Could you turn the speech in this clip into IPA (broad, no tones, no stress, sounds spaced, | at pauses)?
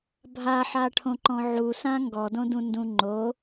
bʱ a ħ a ʈʰ õ ǃ ɔ̃ ʕ u s ã ŋ ɡ ɔ d õ d ũ n d ũ ŋ͡ǃ o